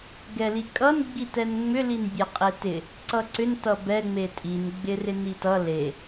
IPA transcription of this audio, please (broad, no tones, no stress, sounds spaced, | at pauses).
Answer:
ɡ ɛ l i kʼ ʌ n ɡ͡b i t ɛ n ŋ͡m ʏ l i n bʲ e qʼ e t ɪ | ǀ ʌ ǀ ʏ n t ʌ b ɛ ŋ͡m e tʼ i n ɡ͡b ɪ r ɪ n i t ʌ l e